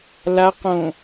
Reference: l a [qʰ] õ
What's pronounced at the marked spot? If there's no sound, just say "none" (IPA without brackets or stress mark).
q